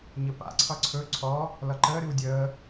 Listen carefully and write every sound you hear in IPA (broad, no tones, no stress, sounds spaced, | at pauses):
ɲ ə p a̰ ǀʰ ʌ ǀʰ ɵ ǀʰ ɔ | l ʌ ǃ əː ɾ ɨ w dʲ əː